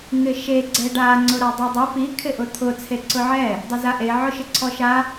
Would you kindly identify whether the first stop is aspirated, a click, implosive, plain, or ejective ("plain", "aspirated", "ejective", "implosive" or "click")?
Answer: click